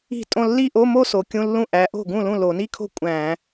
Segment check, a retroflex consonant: absent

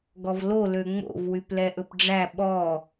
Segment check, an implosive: present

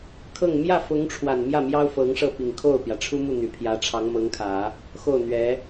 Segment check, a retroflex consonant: present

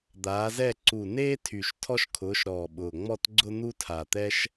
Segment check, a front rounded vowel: present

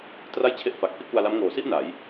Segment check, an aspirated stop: present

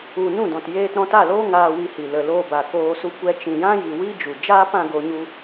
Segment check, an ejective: absent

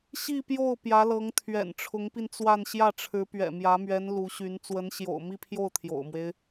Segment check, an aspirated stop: present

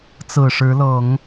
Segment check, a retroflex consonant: present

